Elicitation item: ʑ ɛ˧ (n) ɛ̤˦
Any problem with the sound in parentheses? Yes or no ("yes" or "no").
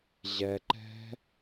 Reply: yes